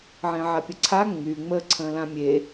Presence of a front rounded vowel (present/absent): present